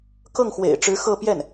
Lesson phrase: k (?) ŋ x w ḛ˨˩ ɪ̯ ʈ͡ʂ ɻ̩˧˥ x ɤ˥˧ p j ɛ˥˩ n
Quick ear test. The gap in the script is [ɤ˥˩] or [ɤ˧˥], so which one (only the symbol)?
ɤ˥˩